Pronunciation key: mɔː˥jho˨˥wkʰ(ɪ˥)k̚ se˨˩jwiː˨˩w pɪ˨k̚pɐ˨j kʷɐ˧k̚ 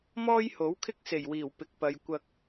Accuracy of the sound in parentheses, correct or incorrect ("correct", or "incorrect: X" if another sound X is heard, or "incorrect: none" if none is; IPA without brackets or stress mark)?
correct